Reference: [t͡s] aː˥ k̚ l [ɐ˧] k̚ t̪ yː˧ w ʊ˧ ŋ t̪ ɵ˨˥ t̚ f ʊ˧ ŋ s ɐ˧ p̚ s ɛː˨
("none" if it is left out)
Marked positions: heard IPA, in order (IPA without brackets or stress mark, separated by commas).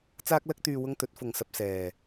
t͡s, ɐ˥